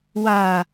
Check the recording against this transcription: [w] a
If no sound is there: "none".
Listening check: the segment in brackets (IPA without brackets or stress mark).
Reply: w